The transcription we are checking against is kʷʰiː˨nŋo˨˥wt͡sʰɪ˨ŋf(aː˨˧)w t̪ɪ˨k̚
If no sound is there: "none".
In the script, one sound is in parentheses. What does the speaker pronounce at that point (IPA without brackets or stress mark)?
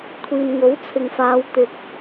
aː˨˧